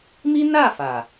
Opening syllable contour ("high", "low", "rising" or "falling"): high